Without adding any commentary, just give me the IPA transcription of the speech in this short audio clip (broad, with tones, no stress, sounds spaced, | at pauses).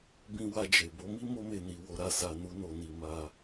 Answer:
b ĩ˧ w a˧ d͡ʒ e˨ b o˨˦ m i˦ m o˦ m e˦˨ n i˧ w o˧ ɾ a˧ s a˧ n u˦ n o˧ n i˧ m a˧